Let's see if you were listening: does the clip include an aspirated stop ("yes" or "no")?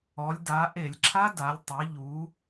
yes